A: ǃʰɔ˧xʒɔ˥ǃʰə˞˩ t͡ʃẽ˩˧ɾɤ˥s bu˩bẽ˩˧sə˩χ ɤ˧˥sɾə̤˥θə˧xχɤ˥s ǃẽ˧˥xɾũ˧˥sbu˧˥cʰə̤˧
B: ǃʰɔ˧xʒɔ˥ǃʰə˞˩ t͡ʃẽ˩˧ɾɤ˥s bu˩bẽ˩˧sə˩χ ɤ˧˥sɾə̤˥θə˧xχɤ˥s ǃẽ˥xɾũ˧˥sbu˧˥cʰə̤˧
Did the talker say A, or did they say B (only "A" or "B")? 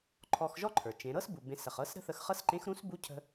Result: A